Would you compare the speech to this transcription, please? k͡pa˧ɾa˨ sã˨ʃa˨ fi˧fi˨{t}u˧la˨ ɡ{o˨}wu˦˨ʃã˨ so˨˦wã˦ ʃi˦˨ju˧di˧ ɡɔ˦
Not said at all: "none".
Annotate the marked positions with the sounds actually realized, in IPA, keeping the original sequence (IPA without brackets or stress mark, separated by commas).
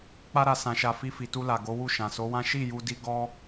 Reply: t, o˨˦